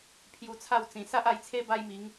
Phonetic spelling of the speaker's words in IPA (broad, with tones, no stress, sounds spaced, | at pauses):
pʰ j u˧ t͡sʰ a˥˧ w t͡s ĩ˨˩ s a˦ ʔ a˧ j t͡sʰ e˦ b a˦ j m i˨˦ ŋ